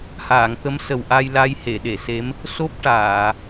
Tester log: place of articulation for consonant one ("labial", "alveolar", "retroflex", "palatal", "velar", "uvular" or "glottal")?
glottal